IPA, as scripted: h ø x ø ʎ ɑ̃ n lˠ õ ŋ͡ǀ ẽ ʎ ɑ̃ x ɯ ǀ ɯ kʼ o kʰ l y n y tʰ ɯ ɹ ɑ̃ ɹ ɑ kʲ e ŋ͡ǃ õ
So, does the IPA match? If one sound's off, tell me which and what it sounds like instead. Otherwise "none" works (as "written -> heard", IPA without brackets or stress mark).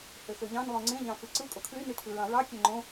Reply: none